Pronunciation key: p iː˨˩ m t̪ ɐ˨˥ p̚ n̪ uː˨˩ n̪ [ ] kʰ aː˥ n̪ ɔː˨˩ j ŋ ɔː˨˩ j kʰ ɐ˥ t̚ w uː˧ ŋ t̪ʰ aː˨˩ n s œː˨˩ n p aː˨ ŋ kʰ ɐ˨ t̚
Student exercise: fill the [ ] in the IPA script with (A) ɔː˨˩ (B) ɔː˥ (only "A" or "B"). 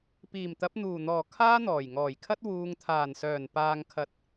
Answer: A